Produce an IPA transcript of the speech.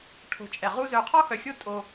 ʈʰ o̤˨ t͡ʃʼ ɛ˨ ʁ u˦ z œ˧ qʰ ɔ˦ x œ˨ xʲ o˦ tʼ o˧

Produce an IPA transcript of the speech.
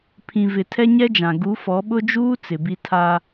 pʰ ĩ˨ v ɪ˨ tʰ ɛ˦ ɲ ɛ˦ d͡ʒ ã˨ ɡ u˨˦ f ɔ˨˦ ɓ ʊ˦ d͡ʒ uː˦ t͡s ɪ˨ b i˦ tʰ a˦

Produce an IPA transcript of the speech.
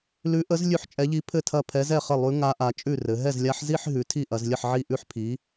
l ʉ˧˥ ʔ ə˧˥ z lʲ ʉ˥˩ ħ t͡ʃʼ ɛ˧˥ ʎ i˧˥ pʰ ɘ˥˩ tʰ ɐ˥˩ pʰ ɛ˧˥ z ɛ˥˩ χ ə˥˩ lˠ ʉ˧˥ ŋ a˧˥ ʔ a˩˥ t͡ʃʼ ʉ˥˩ r ɘ˩˧ ɦ ɛ˥˩ z lʲ a˧˥ ħ z i˥˧ ħ ɦ ʉ˩˥ tʰ i˥˧ ʔ ɐ˩˧ z lʲ ə˥˩ ħ ʕ i˥˩ ʔ ʉ˥˧ ħ pʰ i˩˥

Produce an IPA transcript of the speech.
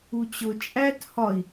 u t͡ɕ ʊ t͡ʃʼ æ t h ɒ i̯

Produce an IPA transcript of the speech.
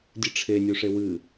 dʲ ɨ ʈ͡ʂʰ e nʲ u ʂ e w ɨ

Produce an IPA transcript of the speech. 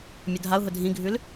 mʲ ʊ dʱ a ʊ̯ ɦ ʊ dʱ ĩ ɡʱ ʉ l

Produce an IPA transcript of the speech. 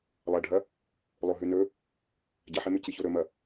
lˠ ɐ ɖʱ ɐ | lˠ o ɦ ʉ n ɵ | ɟ ɐ ħ e m ʉ c i ç o ɾ ɵ m ɐ

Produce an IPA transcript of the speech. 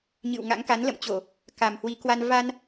ɲ ɨ̰˧˨ w ŋ a̰˧˥ ŋ k a˨˦ n l ə̰˧˨ m t͡ɕ o˧˩˨ | k a˨˩ m h w i˨˦ k w a˧ n v a˧ n

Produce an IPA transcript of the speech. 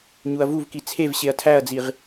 ɲ u ɐ̯ v u v k i t͡sʰ e v ɕ e ɐ̯ tʰ æ ɐ̯ d͡z i ʁ

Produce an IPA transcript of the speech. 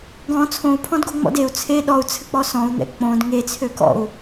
ɡ ɔ̃ t͡sʰ õ u̯ pʰ ɔ̃ d ɡ o ŋ͡m ɔ̰ d e u̯ t͡sʰ e ɗ ɔ u̯ t͡sʰ ɘ k͡p ɔ s ɔ̃ u̯ n̪ ɛ̰ k͡p õ d ŋ e t͡sʰ ø k ɔ̰ u̯

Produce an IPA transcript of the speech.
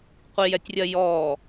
qʷ i j ɛ tʲ rʲ ɜ j ɔː

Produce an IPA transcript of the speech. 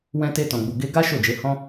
w ɛ̃˧ t e˧ t ɔ̃˨ ɡ͡b u˨ ɡ e˧ ɡ a˦ ʃ o˦˨ d͡ʒ e˨˦ h ɔ̃˦

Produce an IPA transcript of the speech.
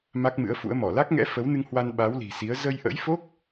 m a˦˥ k̚ m ɨ̰˧˥ ə̯ f ṵ˧˥ ə̯ m ɔ˧˩ l a˦˥ k̚ ŋ ɛ̰˧˥ f ə˨˦ w n ɨ˧ ŋ h w a˧ n ɓ a˨˦ w l i̤˨˩ s i˨˦ ə̯ z ə˧ j ʔ ə̰˧˥ j f o˦˥ k̚

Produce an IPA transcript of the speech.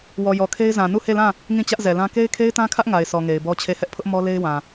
w ɔ˨ j ɔ˨ kʰ e˦ ɪ̯ z ã˨ n u˦˨ h e˦˨ l ã˦˨ | ŋ ĩ˦˨ t͡ɕ ä˦ ʔ z ɛ˨ l ã˦ k e˦ ɪ̯ kʰ e˦ ɪ̯ t ã˦ kʰ ä˦ ʔ ŋ a˨ ɪ̯ s ɔ˨ ŋ e˨ ɪ̯ b ɔ˦ t͡ɕʰ e˦˨ h ɛ˦ ʔ pʰ ʊ˦ ʔ m ɔ˦ l e˦ ɪ̯ w ã˨

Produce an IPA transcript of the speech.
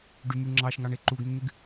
ɖ y m y ŋ͡ǁ ɑ ʃ ŋ ɑ ɳ e ǃ u ɡ nː y ɡ

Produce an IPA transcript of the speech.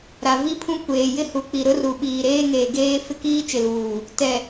ɾ a˨ v i˦ pʰ ũ˦ kʷ eː˨ j ɪ˦ h u˨ k͡p i˨ ɾ ʊ˦ r u˨ ɓ iː˨ ɾ eː˦ ŋ eː˨ ɡ eː˦ f ɪ˦˨ k iː˦ t͡ʃ ɪ˨ l uː˨ | t ɛ˨

